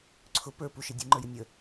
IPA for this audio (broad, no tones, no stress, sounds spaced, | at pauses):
ǀʰ ʊ p ə˞ p u ʃ i dʲ u ŋ͡ǃ ə˞ j ə nʲ ə